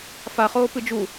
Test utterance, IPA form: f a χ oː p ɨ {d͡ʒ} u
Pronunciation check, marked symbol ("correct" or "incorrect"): correct